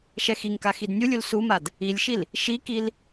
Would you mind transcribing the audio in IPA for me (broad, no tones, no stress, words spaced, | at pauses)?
ʃɛxiŋka xidnʲulʲul sumad | ilʲʃil | ʃikil